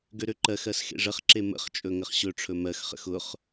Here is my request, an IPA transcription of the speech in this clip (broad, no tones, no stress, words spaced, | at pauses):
ɡøɾøǃɜxɜs xḛʐəχǁe mə̰χt͡ʃʼɵ ŋəχɕɵʈ͡ʂʰɵ mɜxχə̰x ʊχ